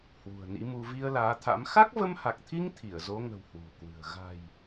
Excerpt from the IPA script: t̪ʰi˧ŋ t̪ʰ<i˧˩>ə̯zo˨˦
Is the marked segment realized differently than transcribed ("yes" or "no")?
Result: no